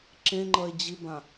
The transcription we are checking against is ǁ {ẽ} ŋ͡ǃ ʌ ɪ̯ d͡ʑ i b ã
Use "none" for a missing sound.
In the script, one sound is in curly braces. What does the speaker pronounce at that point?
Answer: ẽ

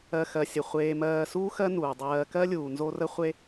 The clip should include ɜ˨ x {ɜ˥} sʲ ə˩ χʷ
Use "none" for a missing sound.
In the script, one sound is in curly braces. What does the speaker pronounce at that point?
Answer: ɜ˩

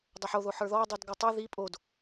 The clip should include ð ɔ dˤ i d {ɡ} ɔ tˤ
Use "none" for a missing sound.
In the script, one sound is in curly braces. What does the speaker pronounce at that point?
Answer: ɡ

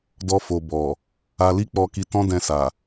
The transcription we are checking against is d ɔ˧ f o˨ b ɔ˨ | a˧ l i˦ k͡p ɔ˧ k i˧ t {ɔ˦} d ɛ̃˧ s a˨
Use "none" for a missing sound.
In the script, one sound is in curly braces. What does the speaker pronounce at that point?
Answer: ɔ̃˦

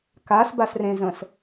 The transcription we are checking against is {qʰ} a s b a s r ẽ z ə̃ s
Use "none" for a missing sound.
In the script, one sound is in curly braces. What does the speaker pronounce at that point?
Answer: k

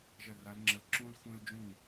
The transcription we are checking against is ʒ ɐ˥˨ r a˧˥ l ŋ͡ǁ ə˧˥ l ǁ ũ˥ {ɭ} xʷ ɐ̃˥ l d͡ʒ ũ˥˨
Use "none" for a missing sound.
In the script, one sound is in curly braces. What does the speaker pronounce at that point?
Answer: l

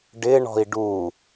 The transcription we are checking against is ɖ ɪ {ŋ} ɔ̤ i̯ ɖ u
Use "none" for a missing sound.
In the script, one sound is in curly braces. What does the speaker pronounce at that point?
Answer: ɳ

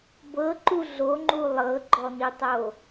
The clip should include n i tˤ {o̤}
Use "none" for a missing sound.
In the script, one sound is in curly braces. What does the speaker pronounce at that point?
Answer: o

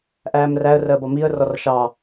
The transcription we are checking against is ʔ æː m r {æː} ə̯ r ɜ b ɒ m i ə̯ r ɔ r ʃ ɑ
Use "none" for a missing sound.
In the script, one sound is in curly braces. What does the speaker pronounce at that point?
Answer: æ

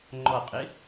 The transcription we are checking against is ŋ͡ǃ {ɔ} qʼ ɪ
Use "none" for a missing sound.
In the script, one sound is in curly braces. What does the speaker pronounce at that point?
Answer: ɔ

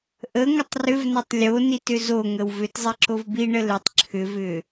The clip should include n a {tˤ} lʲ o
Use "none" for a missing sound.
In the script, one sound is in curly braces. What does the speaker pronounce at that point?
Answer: tˤ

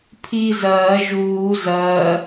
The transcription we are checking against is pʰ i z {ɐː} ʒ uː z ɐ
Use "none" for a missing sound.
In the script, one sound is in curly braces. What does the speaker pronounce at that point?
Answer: ɐː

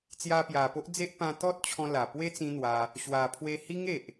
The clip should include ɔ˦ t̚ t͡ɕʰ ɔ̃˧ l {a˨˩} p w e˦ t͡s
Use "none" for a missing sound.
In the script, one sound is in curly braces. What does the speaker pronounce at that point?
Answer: a˨˩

